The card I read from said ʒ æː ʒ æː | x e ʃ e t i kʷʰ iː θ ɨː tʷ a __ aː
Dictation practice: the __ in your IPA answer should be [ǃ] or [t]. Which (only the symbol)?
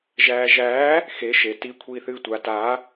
t